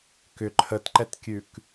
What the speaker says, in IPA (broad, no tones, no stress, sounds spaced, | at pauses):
k ʏ ǃʰ ə t ǃ ɛ t kʲ ʉ k